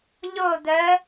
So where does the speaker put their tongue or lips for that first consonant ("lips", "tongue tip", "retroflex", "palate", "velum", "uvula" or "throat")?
palate